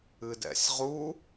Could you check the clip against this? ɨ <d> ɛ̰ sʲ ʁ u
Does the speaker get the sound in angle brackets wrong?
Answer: no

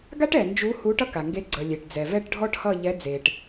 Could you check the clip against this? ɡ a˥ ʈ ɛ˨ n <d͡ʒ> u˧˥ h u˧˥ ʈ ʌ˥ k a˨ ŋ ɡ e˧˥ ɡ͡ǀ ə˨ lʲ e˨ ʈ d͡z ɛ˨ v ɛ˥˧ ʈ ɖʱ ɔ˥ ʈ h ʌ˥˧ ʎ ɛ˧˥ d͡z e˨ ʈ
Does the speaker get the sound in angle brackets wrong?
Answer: no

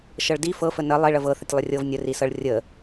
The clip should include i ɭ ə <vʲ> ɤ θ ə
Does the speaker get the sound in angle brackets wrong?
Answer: yes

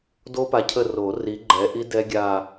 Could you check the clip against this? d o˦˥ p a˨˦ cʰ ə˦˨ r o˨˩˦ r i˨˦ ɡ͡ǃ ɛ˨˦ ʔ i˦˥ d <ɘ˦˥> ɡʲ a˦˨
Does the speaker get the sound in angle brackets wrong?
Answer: yes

